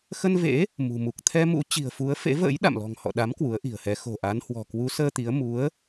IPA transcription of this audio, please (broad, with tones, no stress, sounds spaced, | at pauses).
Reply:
x ə˧ n v ḛ˧˥ | m ṳ˨˩ m u˨˩ k̚ t̪ʰ ɛ˧ m ṵ˧˥ t͡ɕ i̤˨˩ ə̯ f u˨˦ ə̯ f ḛ˧˥ v ə̰ː˧˥ j ɗ a̰˧˨ m l ɔ̤˨˩ ŋ h ɔ̰˧˨ ɗ a˨˦ m k w u˨˦ ə̯ ʔ i̤˨˩ ə̯ h ɛ˨˦ x o̤˨˩ ʔ a˨˦ n h w ɔ̤˨˩ k w u˨˦ s əː˧ t̪ i˨˦ ə̯ m u˨˦ ə̯